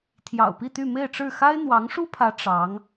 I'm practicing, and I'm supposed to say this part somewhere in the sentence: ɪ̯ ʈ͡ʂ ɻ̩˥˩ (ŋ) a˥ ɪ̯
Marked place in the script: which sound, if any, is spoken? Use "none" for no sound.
x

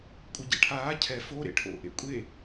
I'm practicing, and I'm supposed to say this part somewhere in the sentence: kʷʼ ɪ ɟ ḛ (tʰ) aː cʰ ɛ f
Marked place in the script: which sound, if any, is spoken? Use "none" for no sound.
ʈʰ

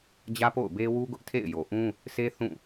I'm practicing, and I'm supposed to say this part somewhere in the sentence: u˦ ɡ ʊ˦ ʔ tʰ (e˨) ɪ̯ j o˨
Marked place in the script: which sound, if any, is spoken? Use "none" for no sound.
ḛ˦˨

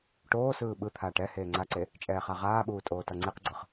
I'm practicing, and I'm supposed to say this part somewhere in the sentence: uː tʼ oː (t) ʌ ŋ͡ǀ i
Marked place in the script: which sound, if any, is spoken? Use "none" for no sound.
t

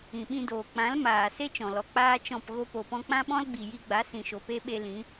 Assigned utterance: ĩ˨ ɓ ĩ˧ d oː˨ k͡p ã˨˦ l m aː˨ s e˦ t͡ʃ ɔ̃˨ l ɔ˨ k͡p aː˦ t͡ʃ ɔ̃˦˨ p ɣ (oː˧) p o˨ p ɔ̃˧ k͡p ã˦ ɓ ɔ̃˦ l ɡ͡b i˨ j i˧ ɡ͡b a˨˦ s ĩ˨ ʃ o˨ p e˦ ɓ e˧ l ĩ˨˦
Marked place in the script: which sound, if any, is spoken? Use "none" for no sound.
o˧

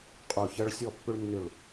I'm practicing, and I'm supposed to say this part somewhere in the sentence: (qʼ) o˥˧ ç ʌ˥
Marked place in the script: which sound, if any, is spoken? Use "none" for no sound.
qʼ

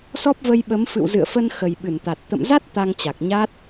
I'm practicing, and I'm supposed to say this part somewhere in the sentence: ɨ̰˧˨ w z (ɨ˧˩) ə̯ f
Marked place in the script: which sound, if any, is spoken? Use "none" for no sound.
ɨ̰˧˨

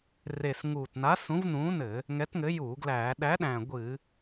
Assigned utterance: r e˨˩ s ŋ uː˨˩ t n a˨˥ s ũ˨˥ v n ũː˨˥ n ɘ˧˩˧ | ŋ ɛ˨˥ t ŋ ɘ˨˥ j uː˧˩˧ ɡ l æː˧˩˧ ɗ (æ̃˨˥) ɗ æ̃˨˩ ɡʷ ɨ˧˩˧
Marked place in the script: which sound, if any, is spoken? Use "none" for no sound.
æ˨˥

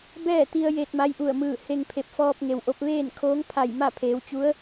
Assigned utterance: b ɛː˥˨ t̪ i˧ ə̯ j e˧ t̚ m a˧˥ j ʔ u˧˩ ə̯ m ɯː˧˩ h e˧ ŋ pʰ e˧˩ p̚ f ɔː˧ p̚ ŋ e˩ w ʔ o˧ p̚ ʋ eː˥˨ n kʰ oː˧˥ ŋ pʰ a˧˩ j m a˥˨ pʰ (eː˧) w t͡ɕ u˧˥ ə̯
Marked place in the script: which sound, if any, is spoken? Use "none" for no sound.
eː˩˧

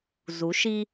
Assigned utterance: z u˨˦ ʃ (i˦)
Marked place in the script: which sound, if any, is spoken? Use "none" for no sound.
i˦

